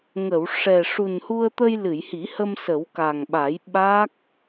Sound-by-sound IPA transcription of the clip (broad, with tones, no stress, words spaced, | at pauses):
ŋə˨˩˨w ʂɛ˨˩ ʂu˨˩nhu˧ə̯t̪ə˧j lɨ˨˩˨jhi˨˩˦hə˧m sə˨˩˦wka˨˩ŋɓa˨˩˦j ɓa˦˥k̚